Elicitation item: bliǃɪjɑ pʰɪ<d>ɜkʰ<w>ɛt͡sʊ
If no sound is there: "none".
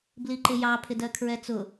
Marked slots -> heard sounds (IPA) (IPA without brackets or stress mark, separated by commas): d, ɹ